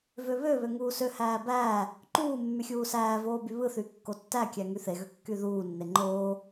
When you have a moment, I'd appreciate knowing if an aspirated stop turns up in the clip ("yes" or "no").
no